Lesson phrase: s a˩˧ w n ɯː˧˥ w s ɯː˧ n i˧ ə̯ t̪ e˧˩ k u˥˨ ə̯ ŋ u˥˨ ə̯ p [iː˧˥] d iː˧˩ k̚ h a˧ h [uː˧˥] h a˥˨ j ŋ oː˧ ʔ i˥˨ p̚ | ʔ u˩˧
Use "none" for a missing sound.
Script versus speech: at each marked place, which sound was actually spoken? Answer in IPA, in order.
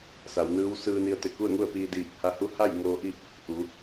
iː˧, u˧˥

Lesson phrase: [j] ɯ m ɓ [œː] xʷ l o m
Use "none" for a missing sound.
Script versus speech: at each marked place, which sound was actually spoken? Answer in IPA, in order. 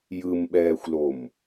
j, ɛː

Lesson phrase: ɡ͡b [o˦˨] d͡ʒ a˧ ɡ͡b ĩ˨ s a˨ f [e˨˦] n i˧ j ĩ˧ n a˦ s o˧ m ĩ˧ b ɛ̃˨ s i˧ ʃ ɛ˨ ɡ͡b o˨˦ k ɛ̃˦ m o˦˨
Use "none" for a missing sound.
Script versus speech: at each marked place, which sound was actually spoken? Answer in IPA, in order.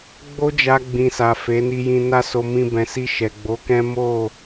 o˦, e˨˦

